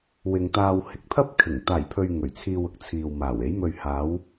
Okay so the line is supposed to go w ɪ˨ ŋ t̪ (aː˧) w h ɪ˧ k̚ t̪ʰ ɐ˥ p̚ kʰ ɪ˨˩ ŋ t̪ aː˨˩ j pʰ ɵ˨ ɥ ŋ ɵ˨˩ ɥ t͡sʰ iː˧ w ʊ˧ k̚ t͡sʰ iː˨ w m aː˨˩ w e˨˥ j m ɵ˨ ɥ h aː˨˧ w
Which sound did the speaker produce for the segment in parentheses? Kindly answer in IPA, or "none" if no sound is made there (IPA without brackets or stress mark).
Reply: aː˧